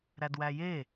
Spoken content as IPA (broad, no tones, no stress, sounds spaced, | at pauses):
ɾ æ d w æ j e